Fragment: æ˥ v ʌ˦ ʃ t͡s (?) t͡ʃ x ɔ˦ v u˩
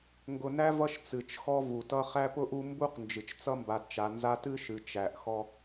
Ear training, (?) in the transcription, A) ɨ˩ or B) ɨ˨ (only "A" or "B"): A